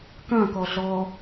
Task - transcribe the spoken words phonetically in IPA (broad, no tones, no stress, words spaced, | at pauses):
kɐ̃kɔɮɔ